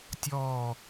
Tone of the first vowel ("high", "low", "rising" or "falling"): falling